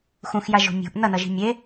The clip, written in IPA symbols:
xũxjaʒo̤ mʲo̤ʔ nʌnʌʒi̤ mʲe

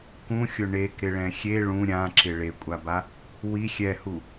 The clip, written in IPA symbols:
kũxʲʊ ɳekɾɪɭɛ̃ xʲe ɭũ ɾʲãǁɪ ɭekʷʼaba | wi xʲɛhu

